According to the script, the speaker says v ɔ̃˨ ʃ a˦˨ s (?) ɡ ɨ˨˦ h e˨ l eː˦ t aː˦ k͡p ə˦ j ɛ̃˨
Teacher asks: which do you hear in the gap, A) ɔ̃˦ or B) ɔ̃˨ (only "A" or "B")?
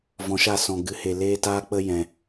B